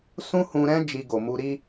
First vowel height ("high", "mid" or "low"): high